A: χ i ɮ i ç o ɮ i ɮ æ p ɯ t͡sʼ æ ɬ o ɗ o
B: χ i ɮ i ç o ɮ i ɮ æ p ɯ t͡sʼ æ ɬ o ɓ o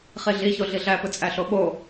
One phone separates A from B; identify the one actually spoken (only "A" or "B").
B